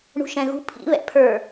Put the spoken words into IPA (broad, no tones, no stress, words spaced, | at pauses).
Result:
ɳṳʃɛ̃ɣṳ pʰḭ βɛ̰pʰə˞